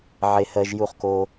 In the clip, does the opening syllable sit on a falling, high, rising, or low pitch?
low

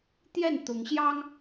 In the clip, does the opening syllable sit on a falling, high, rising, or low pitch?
falling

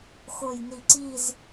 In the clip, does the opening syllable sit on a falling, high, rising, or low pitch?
low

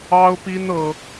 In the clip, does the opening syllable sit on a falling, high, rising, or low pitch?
high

